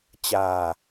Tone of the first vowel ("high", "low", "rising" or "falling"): low